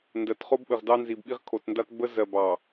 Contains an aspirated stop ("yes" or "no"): yes